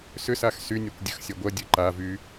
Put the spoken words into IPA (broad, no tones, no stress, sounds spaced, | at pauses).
s ʏ s a x s y nʲ e kʷ dʲ ə x sʲ ɐ ɡʷ ɐ dʲ ɐ ǃ a v y